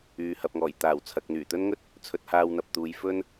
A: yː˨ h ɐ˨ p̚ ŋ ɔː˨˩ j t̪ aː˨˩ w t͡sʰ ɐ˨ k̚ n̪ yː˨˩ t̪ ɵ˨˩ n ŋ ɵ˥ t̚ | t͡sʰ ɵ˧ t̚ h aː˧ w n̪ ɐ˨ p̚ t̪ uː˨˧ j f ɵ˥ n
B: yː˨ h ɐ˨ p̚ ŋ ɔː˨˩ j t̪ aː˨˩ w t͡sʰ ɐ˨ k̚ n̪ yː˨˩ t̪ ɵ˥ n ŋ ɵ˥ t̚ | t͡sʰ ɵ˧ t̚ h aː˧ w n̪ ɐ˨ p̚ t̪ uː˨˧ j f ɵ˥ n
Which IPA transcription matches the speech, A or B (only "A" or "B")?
B